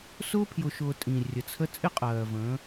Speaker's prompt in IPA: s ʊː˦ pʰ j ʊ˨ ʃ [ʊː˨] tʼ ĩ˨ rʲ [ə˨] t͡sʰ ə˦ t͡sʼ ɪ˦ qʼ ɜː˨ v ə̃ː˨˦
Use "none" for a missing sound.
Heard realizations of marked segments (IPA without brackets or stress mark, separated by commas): ʊː˨, ə˨